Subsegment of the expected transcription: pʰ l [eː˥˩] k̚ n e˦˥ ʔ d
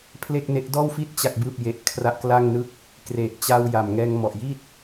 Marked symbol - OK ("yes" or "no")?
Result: yes